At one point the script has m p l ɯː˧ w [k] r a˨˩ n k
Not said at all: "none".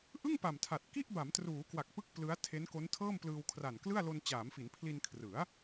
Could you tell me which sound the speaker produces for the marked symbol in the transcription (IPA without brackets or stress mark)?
kʰ